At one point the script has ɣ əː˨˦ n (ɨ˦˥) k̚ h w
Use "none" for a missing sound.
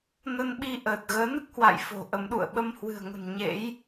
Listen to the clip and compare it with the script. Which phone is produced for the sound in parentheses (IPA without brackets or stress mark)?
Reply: ɨ˦˥